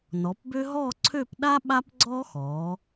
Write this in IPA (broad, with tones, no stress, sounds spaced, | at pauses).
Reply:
n ɔ˩˧ p b ø˥ ɦ ɔ˥˧ ǀʰ ø˥˧ p ɗ a˥ ɓ a˥ p ɡ͡ǀ ɔ˥ x ɔː˩˧